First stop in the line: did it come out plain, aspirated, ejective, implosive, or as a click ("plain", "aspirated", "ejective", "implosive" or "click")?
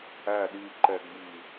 implosive